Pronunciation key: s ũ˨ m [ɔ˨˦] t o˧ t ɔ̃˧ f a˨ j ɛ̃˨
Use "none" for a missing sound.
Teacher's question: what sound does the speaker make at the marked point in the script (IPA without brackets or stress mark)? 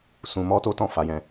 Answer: ɔ˧